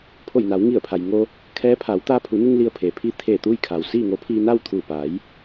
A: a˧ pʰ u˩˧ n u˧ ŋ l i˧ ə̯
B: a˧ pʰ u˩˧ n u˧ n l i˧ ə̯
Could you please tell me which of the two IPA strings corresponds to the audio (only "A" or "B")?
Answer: A